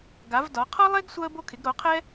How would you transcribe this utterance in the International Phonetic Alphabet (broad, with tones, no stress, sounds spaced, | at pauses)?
ɡ a˨˥ v d ɒ˨˥ qʰ ɒ˥ lˠ e˥ ɡ sʷ a˥ ə̯ b o˥ kʰ ɪ˨˥ ɡ ɾ o˨˥ qʰ ɛ˥